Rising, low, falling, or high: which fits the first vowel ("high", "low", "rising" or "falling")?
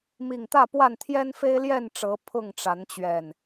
low